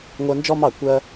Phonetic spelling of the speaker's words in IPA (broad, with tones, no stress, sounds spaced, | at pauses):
ŋʷ ɜ˧ n d͡ʒ ɔ˥ m ɑ˥˩ kʷ ɜ˧